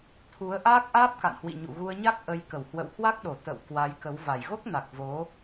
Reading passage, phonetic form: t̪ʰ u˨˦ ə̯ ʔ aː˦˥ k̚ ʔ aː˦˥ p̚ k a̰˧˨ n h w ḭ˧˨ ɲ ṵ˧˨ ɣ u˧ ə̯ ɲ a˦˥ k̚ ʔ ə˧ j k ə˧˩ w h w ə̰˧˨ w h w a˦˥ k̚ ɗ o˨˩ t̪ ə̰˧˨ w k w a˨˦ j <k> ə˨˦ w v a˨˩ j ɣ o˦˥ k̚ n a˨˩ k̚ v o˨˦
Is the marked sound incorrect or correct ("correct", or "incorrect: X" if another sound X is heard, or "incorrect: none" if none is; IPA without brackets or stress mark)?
correct